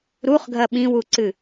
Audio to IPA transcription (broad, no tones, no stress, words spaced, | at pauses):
ɾuχɡʱɐ ɓĩwuǀɨ